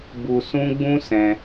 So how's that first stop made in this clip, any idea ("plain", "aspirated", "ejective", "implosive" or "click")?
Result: plain